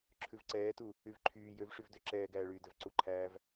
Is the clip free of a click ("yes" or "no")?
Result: no